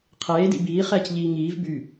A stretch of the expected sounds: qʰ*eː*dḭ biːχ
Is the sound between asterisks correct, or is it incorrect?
correct